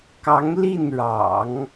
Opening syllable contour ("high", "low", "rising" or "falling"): rising